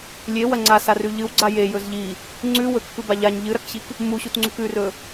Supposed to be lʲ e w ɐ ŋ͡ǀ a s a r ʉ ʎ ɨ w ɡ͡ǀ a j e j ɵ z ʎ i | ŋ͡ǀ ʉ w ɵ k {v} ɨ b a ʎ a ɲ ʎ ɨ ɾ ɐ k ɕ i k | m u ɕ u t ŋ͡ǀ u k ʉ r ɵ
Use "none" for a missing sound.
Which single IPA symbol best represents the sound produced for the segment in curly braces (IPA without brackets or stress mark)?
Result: f